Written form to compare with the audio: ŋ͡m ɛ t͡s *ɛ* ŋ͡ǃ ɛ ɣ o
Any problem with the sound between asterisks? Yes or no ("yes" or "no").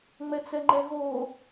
no